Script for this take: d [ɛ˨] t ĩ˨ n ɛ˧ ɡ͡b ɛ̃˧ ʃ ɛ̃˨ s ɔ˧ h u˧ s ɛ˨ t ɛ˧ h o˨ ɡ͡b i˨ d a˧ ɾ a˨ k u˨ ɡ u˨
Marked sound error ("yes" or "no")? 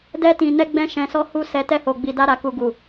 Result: yes